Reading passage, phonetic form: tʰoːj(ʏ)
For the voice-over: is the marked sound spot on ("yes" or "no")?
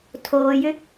yes